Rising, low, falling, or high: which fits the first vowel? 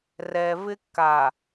low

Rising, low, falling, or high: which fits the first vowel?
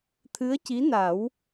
rising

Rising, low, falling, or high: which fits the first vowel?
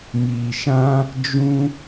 low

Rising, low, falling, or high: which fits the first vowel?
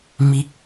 rising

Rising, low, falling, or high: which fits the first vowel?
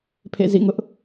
falling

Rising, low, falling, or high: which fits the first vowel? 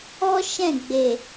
high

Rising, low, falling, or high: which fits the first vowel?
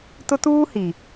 high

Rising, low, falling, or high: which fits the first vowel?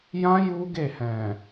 high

